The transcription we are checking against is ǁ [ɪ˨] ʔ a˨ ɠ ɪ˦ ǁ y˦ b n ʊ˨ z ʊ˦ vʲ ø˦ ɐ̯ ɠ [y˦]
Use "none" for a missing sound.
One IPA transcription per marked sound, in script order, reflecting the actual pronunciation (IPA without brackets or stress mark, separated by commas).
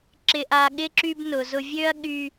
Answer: ɪ˨, y˦